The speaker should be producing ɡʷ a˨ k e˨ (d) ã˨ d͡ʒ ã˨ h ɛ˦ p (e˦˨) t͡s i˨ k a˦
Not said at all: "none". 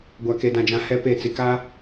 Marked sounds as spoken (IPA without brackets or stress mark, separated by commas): d, e˦˨